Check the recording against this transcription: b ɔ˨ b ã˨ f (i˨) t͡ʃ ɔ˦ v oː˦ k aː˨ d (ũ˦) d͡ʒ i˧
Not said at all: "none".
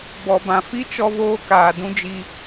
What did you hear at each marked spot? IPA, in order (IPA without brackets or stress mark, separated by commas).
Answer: i˦, ũ˦